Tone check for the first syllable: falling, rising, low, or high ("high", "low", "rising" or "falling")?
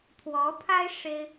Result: rising